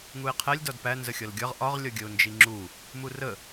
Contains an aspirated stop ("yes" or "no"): yes